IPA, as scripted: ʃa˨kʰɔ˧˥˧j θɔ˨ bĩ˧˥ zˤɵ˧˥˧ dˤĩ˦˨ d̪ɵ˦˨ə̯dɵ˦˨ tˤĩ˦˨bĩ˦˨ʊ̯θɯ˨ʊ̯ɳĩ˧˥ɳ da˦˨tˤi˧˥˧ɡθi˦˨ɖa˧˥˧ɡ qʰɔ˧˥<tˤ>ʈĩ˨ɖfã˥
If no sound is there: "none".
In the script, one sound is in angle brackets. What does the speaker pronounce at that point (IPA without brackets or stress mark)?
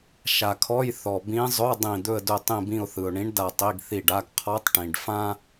tˤ